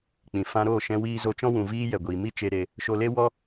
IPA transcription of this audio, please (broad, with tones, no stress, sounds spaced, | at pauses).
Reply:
k͡p ĩ˨ f ã˧ ɾ oː˦˨ ʃ ɛ̃˧ w iː˧ z o˧ t͡ʃ ɔ̃˦ w ũ˨ v iː˧ j ɛ˨ ɡʷ iː˨ m i˦ t͡ʃ e˧ ɾ e˧ | ʃ o˧ l e˦ w ɔ˦